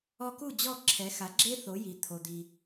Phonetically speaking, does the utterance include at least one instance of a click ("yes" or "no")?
yes